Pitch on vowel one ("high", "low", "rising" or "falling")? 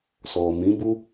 low